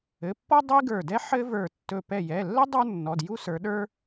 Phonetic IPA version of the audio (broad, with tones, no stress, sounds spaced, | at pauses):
ɘ˩˧˩ pː ɔ˥ dˤ ɘ˥ i̯ ɡ ə˞˧˩ d ɛ˥ ħ ɘ˥ v ə˞˧˩ tː ɵ˧˩ p ɛ˧˩ j ɛ˩˧˩ lː ɘ˥ dˤ ə˞˥ nː ɔ˩˧˩ d j u˥ s ə˞˨˦ ɗ ə˞˥